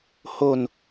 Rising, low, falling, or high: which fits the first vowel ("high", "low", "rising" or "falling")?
low